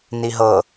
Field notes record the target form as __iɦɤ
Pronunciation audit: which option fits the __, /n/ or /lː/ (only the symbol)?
n